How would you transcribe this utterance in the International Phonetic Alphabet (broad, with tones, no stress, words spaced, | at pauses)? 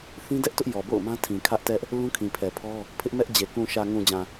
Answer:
θĩ˦dɛ˦ʔ tʊ˦ʔjɔ˨ bo̰˦˨ʊ̯mã˦tʰĩ˨ kʰä˦ʔtɛ˦ʔ | lũ˦kʰĩ˨pʰɛ˨pʰɔ˦ | pʰɪ˦ʔmɛ˦ʔd͡ʑe˨ kũ˨ʃä˨ŋũ˨d͡ʑã˨